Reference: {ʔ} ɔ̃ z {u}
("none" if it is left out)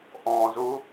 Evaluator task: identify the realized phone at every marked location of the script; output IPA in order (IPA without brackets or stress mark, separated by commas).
ʔ, u